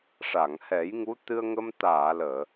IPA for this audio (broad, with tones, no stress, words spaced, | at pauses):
ʂa˨˩˨ŋhɛ˨˩˦jŋu˧˥ t̪ɨ˧ə̯ŋə˧m t̪aː˨˩˨ ləː˨˩˨